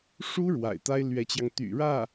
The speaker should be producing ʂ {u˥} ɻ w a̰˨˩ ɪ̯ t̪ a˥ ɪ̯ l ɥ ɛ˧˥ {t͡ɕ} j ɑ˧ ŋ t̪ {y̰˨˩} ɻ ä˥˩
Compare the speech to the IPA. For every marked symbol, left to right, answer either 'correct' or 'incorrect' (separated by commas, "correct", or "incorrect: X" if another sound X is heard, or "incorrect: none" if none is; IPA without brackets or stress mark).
correct, correct, correct